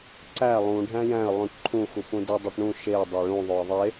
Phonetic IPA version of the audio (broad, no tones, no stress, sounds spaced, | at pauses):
ǀ æ lˠ ũ ɖʱ æ̃ j æ̃ ə̯ lˠ ũ ʈ ǃʰ ũ x u p ũ d e dˤ o ʈ ɳ ũ ʃ e dˤ e ɭ ũ ðˤ o ə̯ ðˤ e